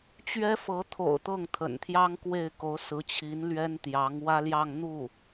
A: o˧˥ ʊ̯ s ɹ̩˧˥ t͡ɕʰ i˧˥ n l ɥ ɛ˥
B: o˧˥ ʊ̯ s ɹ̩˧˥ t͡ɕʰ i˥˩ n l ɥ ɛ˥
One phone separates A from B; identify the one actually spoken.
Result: A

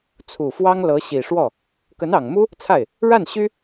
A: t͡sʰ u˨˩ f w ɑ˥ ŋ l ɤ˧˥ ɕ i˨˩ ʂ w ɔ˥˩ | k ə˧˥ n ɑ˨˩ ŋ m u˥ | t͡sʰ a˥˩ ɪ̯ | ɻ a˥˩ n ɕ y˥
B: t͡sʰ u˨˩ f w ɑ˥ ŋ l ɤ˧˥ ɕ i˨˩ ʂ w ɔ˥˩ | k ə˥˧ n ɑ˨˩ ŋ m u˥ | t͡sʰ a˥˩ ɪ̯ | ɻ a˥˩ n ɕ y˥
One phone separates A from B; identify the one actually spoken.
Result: A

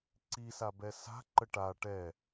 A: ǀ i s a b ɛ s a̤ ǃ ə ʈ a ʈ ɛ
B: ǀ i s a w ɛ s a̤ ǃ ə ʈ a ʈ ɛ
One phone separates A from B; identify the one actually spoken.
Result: A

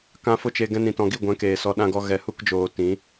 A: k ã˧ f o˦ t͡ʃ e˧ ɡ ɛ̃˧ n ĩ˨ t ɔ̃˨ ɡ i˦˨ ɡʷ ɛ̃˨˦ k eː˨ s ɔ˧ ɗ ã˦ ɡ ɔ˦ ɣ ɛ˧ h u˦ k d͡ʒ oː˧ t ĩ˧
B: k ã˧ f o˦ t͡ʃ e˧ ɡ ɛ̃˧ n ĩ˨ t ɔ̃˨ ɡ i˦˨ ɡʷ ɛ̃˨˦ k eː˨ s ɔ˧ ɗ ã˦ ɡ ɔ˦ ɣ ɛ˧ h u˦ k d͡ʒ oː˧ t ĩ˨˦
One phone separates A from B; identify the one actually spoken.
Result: B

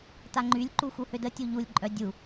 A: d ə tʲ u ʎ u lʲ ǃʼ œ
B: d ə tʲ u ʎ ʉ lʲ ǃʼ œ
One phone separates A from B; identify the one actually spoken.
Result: A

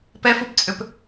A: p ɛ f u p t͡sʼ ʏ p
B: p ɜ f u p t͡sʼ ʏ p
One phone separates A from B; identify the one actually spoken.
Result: A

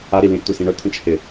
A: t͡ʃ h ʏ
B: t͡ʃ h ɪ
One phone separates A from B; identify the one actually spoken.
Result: B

